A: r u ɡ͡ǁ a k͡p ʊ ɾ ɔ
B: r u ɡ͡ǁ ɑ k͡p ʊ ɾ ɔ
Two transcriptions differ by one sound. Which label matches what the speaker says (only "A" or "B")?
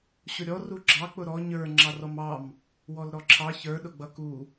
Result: B